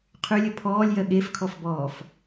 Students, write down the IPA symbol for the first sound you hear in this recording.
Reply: qʰ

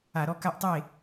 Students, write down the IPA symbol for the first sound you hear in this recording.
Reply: a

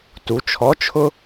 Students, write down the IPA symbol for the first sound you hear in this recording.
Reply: t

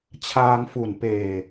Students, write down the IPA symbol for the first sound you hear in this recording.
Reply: t͡ɕʰ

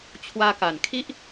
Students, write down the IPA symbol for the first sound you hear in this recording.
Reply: t͡ɕʰ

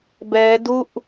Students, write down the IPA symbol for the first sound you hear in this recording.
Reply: b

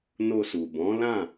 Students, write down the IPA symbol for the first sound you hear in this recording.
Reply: n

